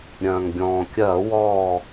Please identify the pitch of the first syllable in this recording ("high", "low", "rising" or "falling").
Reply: low